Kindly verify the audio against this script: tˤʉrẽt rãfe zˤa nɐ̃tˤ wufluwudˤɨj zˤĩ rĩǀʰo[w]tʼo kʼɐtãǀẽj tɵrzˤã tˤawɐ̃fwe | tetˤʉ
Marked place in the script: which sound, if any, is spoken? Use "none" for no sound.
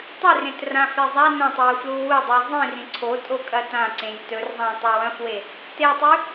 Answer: none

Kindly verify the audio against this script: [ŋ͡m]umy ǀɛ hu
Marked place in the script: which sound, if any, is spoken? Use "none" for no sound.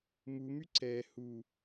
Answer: m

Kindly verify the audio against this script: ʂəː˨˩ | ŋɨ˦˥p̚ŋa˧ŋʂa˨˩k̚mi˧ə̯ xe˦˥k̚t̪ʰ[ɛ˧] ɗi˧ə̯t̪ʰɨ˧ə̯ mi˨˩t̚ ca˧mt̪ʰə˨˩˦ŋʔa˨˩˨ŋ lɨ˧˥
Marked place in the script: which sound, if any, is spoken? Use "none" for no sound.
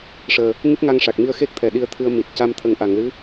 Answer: ɛ˨˩˨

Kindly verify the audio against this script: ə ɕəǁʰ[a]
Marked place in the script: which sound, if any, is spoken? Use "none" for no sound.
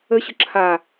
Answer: a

